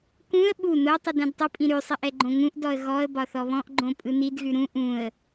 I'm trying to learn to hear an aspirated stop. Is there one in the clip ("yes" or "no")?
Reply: no